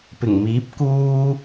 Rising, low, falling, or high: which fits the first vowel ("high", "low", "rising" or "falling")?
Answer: low